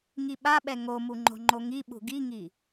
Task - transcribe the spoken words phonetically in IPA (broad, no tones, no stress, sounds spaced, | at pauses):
ŋ i ɓ a ɓ ɛ ŋ o m u ŋ͡ǃ o̤ ŋ͡ǃ o ŋ i ɓ ṳ ɡ i ŋ i